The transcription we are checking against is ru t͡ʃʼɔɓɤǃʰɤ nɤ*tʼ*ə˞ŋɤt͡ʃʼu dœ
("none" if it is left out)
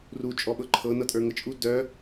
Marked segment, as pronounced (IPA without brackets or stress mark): tʼ